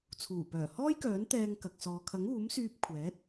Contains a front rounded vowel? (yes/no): yes